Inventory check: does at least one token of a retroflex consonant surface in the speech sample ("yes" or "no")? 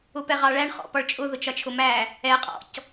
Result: yes